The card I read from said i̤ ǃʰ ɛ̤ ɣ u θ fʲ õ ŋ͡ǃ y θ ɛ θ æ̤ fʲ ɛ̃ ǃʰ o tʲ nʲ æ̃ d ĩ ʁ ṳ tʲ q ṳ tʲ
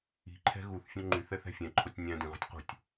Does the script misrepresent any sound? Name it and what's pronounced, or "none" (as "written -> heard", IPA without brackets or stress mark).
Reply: none